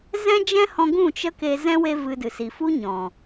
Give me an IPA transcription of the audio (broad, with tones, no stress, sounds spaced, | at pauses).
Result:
z ɛ̃˦ d͡ʒ ɛ̃˦ h ɔ̃˧ ɡ ũ˦˨ t͡ʃ ə˦ k e˧ z ɛ̃˦ w e˦ v ɨ˧ d ɨ˨ s i˨ f u˦ ɲ ɔ̃˨